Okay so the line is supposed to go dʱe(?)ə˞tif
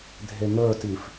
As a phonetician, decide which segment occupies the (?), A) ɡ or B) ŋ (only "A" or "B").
B